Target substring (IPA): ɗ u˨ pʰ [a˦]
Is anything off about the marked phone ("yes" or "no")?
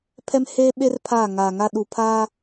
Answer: no